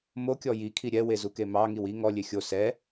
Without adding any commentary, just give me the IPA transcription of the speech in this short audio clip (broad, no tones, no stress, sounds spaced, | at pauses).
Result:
m o kʲ ɔ j i kʰ i ɾʲ ɛ w e z u k e m ɑ ŋ i w i ŋ ɔ lʲ e xʲ o s ɛ